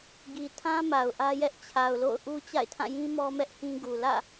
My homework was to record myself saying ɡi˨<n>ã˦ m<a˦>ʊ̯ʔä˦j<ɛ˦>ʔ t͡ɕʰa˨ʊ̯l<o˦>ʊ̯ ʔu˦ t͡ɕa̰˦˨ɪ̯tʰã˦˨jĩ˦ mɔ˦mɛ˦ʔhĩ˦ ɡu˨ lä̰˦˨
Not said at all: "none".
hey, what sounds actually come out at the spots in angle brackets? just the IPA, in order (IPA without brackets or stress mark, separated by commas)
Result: tʰ, a˨, ɛ˦, o̰˦˨